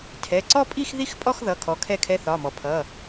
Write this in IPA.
tʰ ɛ˩˧˩ ǀ ɔ˥˧ pʼ i˥˧ x ð i˥˧ x pʼ ɔ˥˧ x ð ʌ˩˧˩ kʰ ɔ˨˦ kʰ ɛ˥˧ kʰ ɛ˧˥˧ θ ɒ˩˧˩ m ɔ˩ pʰ ʌ˩˧˩

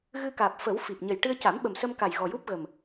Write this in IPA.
ɣ ɨ˧ k aː˨˩ p̚ f ə˨˩˦ w f i˨˩ p̚ ɲ ə˨˩ j ʈ ɨ˧ ə̯ c a˨˩˦ m ɓ ə˨˩ m s ə˧ m k a˨˩ j ɣ ɔ˨˩ j u˦˥ p̚ ɣ ə˨˩ m

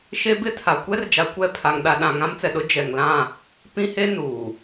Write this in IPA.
ʃ e˦ b ɪ˦ tʰ a˨ kʷ ɛ˦ r d͡ʒ a˨ kʷ ɛ˦˨ pʰ a˨ ŋ ɗ a˨ ɗ ã˨ ŋ ã˦ m t͡s ɛ˨ ɗ ʊ˦ d͡ʒ ɛ˨ ŋ l ã˦˨ | p ĩ˦ h e˦ n uː˨

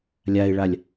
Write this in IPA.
lʲ a ɪ̯ ɭ a lʲ

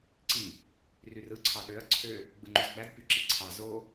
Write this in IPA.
ǀ i | r y r ɯ ǀʰ ɑ ɗ ø ɐ̯ ǀʰ ø | ɡ͡b ɯ ŋ͡ǃ y z ɡ͡b æ d p y ǁ i ǀʰ ɑ z o

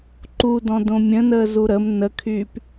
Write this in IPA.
ǃ u d ɔ̃ d õ mʲ ə̃ n əː z u ɾ ə m n ə kʰ yː p

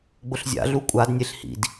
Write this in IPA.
ɡ͡b ʊ ɬ zʲ a̰ ɮ u kʷʼ a d nʲ e ɬ h ḭ d

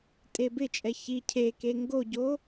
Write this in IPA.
tʼ e b ɪ t͡ʃʼ ɛ ç i cʰ e k e ŋ ɡ o ɟ o

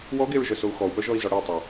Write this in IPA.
w ɔ ɡ e ɹ ʒ œ s o u̯ x ɔ u̯ p œ ʒ ɔ i̯ z ɔ ɽ e tˤ o

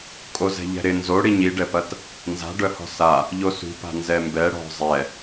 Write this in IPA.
kʼ o z ɛ̤ ʎ ɛ̤ ɾ ɪ n z o ɽ i ɲ i ɖ ɛ p ɐ t | n z a̤ ɖ œ h ɔ̤ s a | ʎ o s ṳ p a̤ n z ɛ m b ɛ ɽ ɔ̤ zˤ ɛ

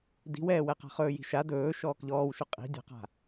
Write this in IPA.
d i̤ w ɛː w ɛ q a̤ χ ɵː j i̤ ʃ a d ɵː ʃ ɔː k ʎ ɔː w ʃ ʊ qʼ i̤ dʲ a̤ q a̤

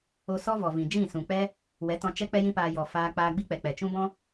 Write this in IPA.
o˧ s ɔ˦ v ɔ˨ v ĩ˨ d͡ʒ ĩ˦˨ s ũ˨ k͡p ɛ˦ | w ɛ˨˦ t ɔ̃˧ t͡ʃ ɛ˦ k͡p ɛ˦ j ĩ˦ p aː˧ j ɔ˨ f aː˧ k͡p aː˧ ɡ͡b i˦ k͡p ɛ˨ k͡p ɛ˨ t͡ʃ ũ˦ b ɔ̃˦

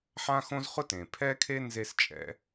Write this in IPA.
ħ ã˥ x õ˥ z χ ʊ˥ t ẽ˩ pʰ ɛ˥ kʰ e˥ n z e˥ s t͡ʃʼ ɛ̰˥

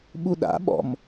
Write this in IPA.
ɓ u ɗ a̰ ɓ ɔ̰ m

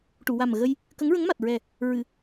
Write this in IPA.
ʈ u˨˩˨ w a˨˩ m ɣ ə˧ j | k ə˧˥ ŋ ɹ ə˧˥ ŋ m a˨˩ t̚ ɹ ɛ˨˩ | ɹ ɨ˨˩˨

